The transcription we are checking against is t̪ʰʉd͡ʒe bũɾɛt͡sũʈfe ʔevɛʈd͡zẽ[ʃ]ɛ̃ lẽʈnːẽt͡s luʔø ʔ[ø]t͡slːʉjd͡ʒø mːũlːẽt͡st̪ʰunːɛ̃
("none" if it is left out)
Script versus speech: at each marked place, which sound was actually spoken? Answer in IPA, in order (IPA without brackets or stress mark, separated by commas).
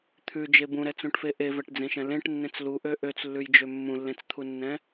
ʃ, ø